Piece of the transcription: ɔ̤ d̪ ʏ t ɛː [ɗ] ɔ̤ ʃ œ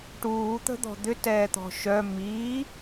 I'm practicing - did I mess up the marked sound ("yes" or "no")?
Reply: yes